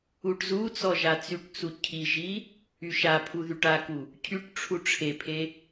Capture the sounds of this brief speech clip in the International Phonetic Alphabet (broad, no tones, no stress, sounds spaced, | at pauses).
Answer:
u ʈ z u t͡s ɔ ʒ a t͡s y ʈ t͡s u cʰ i ʒ i | y ʃ a pʰ u ð y ʈ a k u | cʰ y ʈ ʈ͡ʂʰ u ʈ͡ʂʰ e pʰ e